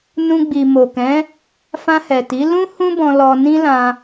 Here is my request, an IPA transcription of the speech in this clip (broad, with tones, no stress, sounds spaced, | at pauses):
n ũ˧ ɡ͡b i˨ m o˨ k ɛ̃˨˦ | f ã˧ h ɛ˨ t i˨˦ l ũ˦ h ũ˦ b ɔ̃˧ l ɔ˧ n ĩ˦ l ã˧